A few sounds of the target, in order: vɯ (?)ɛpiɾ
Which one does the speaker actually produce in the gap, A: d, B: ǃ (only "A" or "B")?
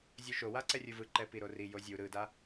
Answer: B